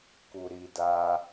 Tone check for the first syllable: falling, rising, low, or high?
low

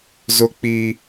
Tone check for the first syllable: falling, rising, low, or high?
high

